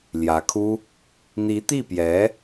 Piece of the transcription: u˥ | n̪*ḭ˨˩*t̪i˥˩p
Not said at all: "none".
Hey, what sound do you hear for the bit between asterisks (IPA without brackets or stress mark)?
i˧˥